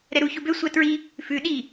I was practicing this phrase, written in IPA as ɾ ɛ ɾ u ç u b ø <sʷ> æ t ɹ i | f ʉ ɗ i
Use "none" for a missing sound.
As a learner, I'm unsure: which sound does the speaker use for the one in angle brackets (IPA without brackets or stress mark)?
sʷ